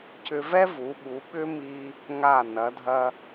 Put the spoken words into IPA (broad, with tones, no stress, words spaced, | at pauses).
cʏ˧vɛ˥vu˩˧ɓu˩˧ ɓʏ˥mi˧ | ŋa˧˩nɐ˩˧dʱɐ˧